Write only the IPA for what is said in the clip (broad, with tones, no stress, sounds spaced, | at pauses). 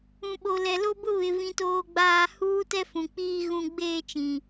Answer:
ũ˦ ɓ o˦ l ɛ˦ l o˦ b ʊ˦ β ɪ˦ v ĩ˦ t oː˦ ɡ͡b aː˦ h uː˦ t ɛ˦ f ũ˨ k͡p iː˦ ɣ ũ˦ ɡ͡b eː˦ t͡ʃ ĩ˨